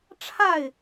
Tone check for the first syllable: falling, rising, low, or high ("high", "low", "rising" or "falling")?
falling